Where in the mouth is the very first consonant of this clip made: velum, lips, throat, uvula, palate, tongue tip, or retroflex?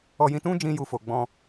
palate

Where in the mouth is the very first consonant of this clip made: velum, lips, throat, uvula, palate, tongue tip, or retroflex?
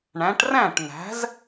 retroflex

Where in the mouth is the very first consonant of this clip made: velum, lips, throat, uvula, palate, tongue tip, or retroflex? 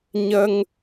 palate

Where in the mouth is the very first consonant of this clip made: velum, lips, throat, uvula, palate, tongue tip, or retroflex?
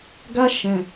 velum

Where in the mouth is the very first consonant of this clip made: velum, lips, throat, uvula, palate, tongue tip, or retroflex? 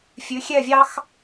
lips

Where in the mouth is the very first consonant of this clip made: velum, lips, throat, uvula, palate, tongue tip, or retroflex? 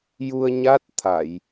palate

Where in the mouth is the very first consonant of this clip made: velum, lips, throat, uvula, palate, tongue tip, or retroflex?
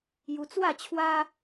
palate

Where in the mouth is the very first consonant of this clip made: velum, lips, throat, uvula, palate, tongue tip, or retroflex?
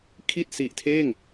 velum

